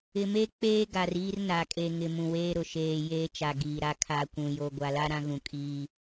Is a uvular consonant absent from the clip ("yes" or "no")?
yes